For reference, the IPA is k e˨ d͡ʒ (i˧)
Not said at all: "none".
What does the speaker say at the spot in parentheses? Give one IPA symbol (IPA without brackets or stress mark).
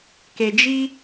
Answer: i˧